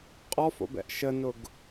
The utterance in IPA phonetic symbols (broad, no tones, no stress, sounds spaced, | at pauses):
qʼ ɔ f o̰ b ɛ̰ ʔ ʃ ə n ʊ ɡ